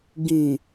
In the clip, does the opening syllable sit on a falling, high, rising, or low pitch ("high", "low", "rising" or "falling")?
low